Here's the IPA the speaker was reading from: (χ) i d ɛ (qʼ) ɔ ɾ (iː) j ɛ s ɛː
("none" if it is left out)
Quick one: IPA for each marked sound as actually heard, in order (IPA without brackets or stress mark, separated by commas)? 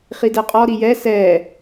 χ, qʼ, i